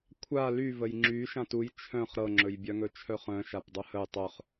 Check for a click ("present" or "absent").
present